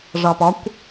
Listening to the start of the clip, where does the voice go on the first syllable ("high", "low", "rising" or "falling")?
low